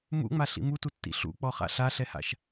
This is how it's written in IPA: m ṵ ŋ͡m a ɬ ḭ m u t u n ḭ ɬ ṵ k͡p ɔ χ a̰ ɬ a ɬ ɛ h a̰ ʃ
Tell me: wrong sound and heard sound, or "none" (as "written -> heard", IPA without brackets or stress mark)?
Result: n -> tː